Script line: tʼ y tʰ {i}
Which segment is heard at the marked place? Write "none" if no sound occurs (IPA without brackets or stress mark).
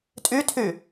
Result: y